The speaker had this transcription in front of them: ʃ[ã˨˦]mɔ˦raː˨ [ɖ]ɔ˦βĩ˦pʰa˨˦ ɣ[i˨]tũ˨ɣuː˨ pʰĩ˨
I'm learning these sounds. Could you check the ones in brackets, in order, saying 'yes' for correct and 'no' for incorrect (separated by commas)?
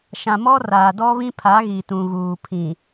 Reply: no, no, yes